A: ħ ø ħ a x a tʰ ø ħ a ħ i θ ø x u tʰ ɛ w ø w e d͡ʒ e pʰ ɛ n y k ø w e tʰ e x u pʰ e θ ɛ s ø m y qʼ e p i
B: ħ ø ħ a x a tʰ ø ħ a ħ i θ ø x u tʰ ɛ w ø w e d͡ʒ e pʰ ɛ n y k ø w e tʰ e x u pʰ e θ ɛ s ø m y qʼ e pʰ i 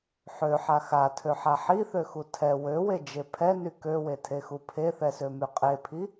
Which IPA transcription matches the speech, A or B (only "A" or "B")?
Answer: B